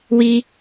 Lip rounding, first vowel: unrounded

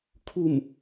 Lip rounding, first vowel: rounded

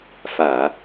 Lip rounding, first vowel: unrounded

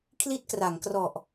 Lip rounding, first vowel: unrounded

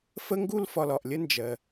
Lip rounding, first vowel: unrounded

